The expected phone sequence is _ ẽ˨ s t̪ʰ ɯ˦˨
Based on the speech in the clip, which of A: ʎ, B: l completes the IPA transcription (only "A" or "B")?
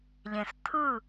A